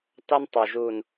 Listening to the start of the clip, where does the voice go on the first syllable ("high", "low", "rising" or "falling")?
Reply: high